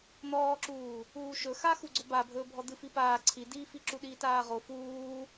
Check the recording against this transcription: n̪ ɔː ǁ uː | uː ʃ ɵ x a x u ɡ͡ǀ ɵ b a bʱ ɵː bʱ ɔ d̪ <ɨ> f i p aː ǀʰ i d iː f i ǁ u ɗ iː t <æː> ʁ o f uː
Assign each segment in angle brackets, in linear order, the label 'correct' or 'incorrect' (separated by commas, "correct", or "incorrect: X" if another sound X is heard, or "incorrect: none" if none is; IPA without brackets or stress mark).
correct, incorrect: aː